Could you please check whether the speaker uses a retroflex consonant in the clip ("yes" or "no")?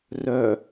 no